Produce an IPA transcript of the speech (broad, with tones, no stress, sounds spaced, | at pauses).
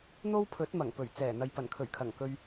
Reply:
n̪ o˥ w pʰ ɵ˨˥ t̚ m ɐ˨˩ ŋ p ɵ˨˩ ɥ t͡s ɛː˨˩ n̪ ɐ˨ j p ɐ˨˩ n kʰ ɵ˨˩ ɥ kʰ ɐ˨˩ ŋ k ɵ˧ ɥ